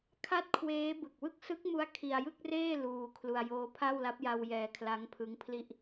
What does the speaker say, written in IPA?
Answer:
kʰa˥˩t̚ kʰweː˦˥ bɯ˨˩k̚wɯ˥˩k̚ sɯ˦˥k̚mu˦˥a̯ kʰi˧a̯jɯ˥˩k̚reː˥˩ luː˧kʰlu˧a̯ joː˧pʰa˥˩wla˦˥p̚ja˧w jɛː˧kʰla˦˥ŋpʰɯ˦˥ŋpʰli˥˩ʔ

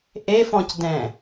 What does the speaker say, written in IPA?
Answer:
ʔefɔ̃cdɛ̃

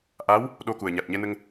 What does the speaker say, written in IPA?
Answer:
ʔa˧˥w | ɗo˧ku˨˩ə̯ ɲa˨˩t̚ɲɛ˧nə˧ŋ

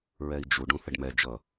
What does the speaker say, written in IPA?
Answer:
ɹɛi̯d͡ʒu ɖũθəɖmɛ d͡ʒʌ

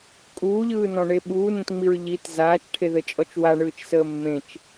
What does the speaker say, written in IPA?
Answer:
kʼuːʎɯːnɔ̃ɳe ɓuːnẽtŋ͡miɹ ʎit zaːt͡ʃʈʰeðət͡ʃʼɔt͡ʃ waɳɯːt͡ʃsəː mːẽt͡ʃ

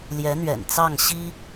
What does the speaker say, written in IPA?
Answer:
ljɛ˧˥n̪ɥɛ̰˨˩n t͡sɑ˥˩ŋ ɕi˥

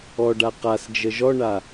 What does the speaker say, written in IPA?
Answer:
ɔɖa qasd͡ʒə ʒɔɳa

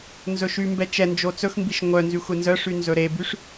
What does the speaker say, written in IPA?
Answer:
nzɵʃymbɛ t͡ʃɛnd͡ʒo t͡sɵxmbiʃ ŋʷœ nzyxʷenzœʂy nzɵɾebyʂ

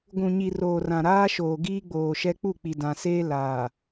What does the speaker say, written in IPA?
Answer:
ɡʷũ˨ɲi˨roː˨rã˨ ɾaː˦ʃoː˨ ɡiː˦ɡ͡boː˨ʃɛ˦ k͡pu˦˨k͡pi˨ dã˨seː˦ laː˨

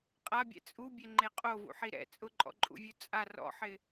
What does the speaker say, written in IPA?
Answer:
qʼabʲɛ̰ t͡sʼubʲɛŋ͡ǃe qʼovṵħi ɾɛ̰ t͡sʼʊǃʼɔ̰ǃʼṵvʲu t͡sʼa rɔ̰ħɪ

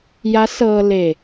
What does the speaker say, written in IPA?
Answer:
ja˧˥sɤː˧ le˧˩

